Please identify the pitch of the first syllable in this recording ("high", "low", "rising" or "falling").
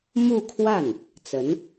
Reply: falling